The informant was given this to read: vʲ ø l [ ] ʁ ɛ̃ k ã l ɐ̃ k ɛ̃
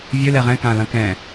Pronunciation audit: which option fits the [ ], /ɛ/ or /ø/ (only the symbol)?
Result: ɛ